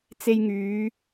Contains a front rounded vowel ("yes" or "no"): yes